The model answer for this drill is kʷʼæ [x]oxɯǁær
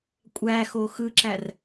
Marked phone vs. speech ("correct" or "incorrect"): correct